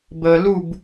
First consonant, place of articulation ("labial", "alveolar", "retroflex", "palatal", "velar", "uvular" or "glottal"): labial